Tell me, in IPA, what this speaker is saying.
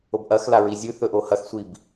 o b ʔ ɐ x l a ɹ i zʲ ʉ θ ɵ ʔ o h ɐ x sʷ i b

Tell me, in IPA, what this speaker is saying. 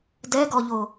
d ɛ ɡ ɔ ʎ o

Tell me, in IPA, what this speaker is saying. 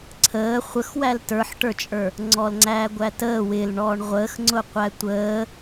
ǀʰ əː χʷ ə x w æ l t ə˞ ħ ʈ ə˞ t͡ʃʼ ə˞ | ŋ͡ǀ ɔ l ŋ͡ǀ æː ɡʷ æ t əː w ɪ l ɳ ɔː ɳ ʁʷ əː x ŋ͡ǀ ʊ qʷ æ tʷ əː

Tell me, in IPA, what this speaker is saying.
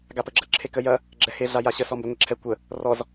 ɡ a p ə ɡ͡ǁ ɐ ǁʰ e k ə j ɐ | ɡ͡ǁ ɛ h e ɮ a j a ɕ ə s ɔ m b ə ŋʷ e ǁʰ ɛ kʷ ə | r ɔ z

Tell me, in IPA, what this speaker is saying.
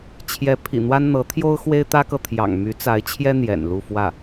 t͡ɕʰ j ɛ˧˥ pʰ ḭ˨˩ n̪ w a˥ n n̪ ɤ˧˥ t̪ʰ j o˥ ʊ̯ x w e˥ ɪ̯ t̪ ä˥ k ɤ˨ t̪ʰ j ɑ̰˨˩ ŋ m y˧˥ t͡s a˧˥ ɪ̯ t͡ɕʰ j ɛ˥ n̪ j ɛ̰˨˩ n l u˥˧ f w ä˥˩

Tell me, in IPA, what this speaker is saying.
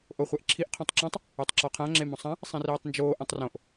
ʔ o χʷ ɛ ʔ ǁʰ i ʔ qʰ õ tˤ ǁ ɔ̃ tˤ | e tˤ ǁ ɔ qʰ ã ŋ͡ǁ e m õ sˤ ã | sˤ ĩ r iː tˤ n d͡ʒ oː ʔ ɛ̃ tˤ r õ ʔ

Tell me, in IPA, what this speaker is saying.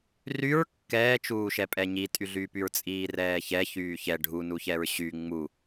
r y ɹ kː ɛː t͡ʃ uː ʃ ɛ pʼ ɛ ɲ i tʼ y ɮ yː p y ɹ t͡sʼ iː r ɛː ç ɛ ç yː ç ɛ ɖʱ u n u ç ɛ ɹ ɕ y ŋ͡m u

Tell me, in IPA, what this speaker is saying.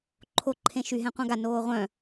ǃʰ o ǃʰ ẽ ʃ y ɦ ɛ̃ qʷ œ̃ ɡ a n oː ʁʷ œ̃

